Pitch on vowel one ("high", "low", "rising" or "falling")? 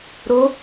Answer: rising